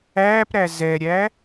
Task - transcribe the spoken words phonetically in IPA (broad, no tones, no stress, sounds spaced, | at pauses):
æː p ɾ æ z ɛ ɾʲ æ